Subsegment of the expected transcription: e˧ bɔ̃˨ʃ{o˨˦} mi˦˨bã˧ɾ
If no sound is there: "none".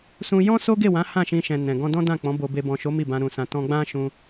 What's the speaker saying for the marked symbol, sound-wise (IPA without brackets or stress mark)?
o˨˦